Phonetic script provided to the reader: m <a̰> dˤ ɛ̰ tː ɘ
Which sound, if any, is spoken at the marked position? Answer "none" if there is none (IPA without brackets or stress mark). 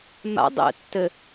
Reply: a̰